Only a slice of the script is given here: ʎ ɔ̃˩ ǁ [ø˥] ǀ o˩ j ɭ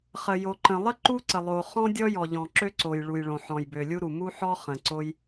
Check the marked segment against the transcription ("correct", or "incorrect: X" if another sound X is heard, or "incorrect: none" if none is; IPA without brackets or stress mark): correct